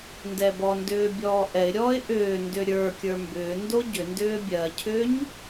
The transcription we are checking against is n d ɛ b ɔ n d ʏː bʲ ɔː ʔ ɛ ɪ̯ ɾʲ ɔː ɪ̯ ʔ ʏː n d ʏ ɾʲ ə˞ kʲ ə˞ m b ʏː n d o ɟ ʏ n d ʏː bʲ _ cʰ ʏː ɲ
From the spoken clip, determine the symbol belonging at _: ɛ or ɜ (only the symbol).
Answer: ɜ